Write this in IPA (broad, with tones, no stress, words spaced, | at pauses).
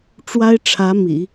ʈ͡ʂwa˥ɪ̯ʈ͡ʂʰä˧˥ mḭ˨˩˦